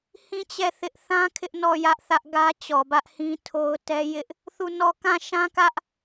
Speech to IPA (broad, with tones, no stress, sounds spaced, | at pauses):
h ĩ˦˨ t͡ɕ ɛ˦˨ θ ɪ˦ ʔ θ ã˦ kʰ ɪ˦ ʔ n ɔ˦˨ j ä˦ ʔ θ ä˦ ʔ ɡ ä˦ t͡ɕ ɔ˨ b ä˦ ʔ h ĩ˦ tʰ o˦ ʊ̯ t ɛ˦ j ɪ˦ ʔ | θ u˦˨ n ɔ˦˨ k ã˦˨ ʃ ã˦ k ä˦ ʔ